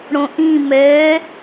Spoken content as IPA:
ɽ õ ʔ ĩ m ɛ

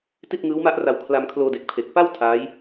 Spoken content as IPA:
t i˥˩ t̚ ŋ ɯː˦˥ w m a˦˥ ʔ r a˧ w kʰ l a˧ m kʰ l oː˧ d e˨˩ k̚ pʰ e˨˩ k̚ p a˥˩ w tʰ aː˦˥ j

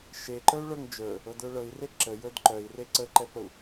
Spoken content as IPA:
ʃ e ǃ ə˞ u̯ ɭ ə˞ ŋ d͡ʒ ə˞ | ɤ d ə˞ ɭ ɤ i̯ r e ǁ ə j ə˞ d ǃ œ i̯ r e ǀ ə ǃ ɛ p ə u̯

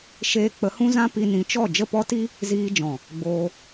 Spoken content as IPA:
ʃ eː˧ k͡p ə˨˦ h ũ˦ z ã˦ p i˧ n ĩ˨˦ t͡ʃ ɔ˦˨ d͡ʒ ə˦˨ p ɔ˦ t i˦ | z iː˧ d͡ʒ ɔ̃˨ | ɡ͡b oː˧

